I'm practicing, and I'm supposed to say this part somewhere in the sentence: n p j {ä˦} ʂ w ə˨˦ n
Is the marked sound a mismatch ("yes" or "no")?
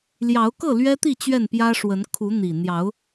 no